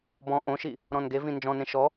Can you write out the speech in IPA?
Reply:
bɔ̃ ʔõʃi | ɾɔ̃nɡevĩ nd͡ʒɔ̃nẽ ʃɔ

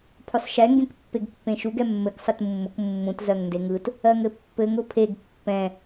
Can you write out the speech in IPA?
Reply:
pʰʊsˤʃɛ ŋɡẽkpːeɡpːẽʃuɡ ɛmːɘk sˤɯtmːʊk mːũt zɜŋndeŋɯt | ɜŋɘpːɘŋ ʊpʰeɡ pːɛ̃

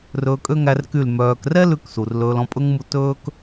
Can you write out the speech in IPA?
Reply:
rɵː˧kʼø˦ŋæ˧rky˦˨l mœː˧k rɛ˦ lʉ˧k su˨rlɵː˧lɔ̃˧pʼɵ˦ŋ mu˧tɵː˦k

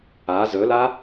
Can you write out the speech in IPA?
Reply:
a zɵla

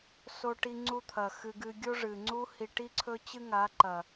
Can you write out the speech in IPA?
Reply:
so˧ʈi˧ŋ͡ǀu˧t̪ʰɐ˨ xɨ˧ɡɨ˧ ɡʲo˦ʐɨ˨ŋ͡ǀu˦ hi˧ʈi˦ǀʰɵ˦ t͡ɕɨ˦ŋa˨˦ǃɐ˨

